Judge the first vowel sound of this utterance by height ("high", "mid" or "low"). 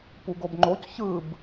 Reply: high